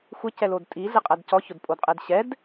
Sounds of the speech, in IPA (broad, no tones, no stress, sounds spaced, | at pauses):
xʷ ɪ c ɛ l o d tʼ i ɮ ɪ qʼ ɛ d c ɔ ç ʊ d pʼ o d qʼ e d ɕ ɛ d